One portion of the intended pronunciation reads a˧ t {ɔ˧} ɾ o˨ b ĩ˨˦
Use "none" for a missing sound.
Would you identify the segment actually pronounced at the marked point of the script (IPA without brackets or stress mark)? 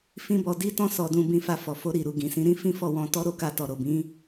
ɔ˨